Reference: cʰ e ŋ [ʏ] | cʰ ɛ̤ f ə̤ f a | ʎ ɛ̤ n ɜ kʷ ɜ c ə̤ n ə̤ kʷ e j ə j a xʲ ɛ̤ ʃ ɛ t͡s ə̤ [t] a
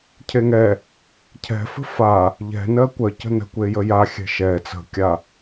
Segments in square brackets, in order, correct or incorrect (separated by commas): incorrect, incorrect